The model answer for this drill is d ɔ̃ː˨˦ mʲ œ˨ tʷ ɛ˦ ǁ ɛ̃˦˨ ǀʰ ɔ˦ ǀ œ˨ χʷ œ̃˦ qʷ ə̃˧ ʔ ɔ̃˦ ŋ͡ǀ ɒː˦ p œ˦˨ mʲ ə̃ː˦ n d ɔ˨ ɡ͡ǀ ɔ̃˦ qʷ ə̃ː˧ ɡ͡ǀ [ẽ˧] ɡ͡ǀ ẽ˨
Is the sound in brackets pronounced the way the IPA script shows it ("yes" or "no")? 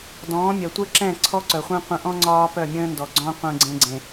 yes